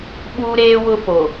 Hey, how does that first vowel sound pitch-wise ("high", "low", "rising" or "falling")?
high